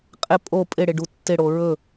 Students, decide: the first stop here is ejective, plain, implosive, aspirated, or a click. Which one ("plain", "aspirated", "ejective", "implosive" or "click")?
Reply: ejective